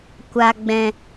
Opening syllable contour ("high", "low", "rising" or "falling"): high